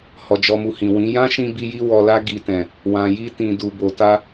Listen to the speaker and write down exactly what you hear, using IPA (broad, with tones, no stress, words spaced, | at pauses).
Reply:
hɔ˨d͡ʒɔ˨mu˨ hĩ˨wĩ˨˦ jã˦ʃĩ˧bi˧ji˧ wɔ˨la˧ ɡi˨tɛ̃˨ | wã˨ji˧tĩ˨ du˨bo˨ta˧